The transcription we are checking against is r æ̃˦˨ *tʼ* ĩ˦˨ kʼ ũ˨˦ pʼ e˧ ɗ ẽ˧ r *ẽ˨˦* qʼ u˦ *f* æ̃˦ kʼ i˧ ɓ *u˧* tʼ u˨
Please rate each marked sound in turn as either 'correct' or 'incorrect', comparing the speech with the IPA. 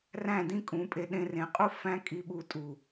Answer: incorrect: d, correct, correct, correct

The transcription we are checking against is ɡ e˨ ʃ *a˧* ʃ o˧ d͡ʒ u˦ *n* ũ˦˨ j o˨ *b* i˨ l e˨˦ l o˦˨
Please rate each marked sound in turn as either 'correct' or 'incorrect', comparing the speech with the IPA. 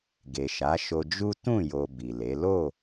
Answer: incorrect: a˨˦, incorrect: t, correct

